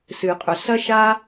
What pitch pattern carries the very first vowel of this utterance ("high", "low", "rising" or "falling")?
low